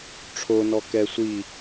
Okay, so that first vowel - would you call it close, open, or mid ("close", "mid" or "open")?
mid